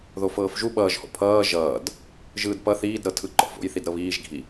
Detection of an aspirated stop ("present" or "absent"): present